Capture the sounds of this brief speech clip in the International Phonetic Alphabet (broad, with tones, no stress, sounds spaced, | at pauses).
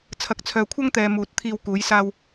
t͡sʰ ɐ˨ k̚ t͡sʰ œː˨ kʷʰ ɐ˥ ŋ t̪ ɛː˨ m uː˨˥ t̚ t̪ʰ iː˧ w k uː˨˧ j s aː˧ w